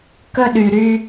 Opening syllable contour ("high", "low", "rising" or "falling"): high